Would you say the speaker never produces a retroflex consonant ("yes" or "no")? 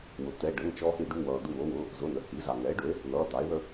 no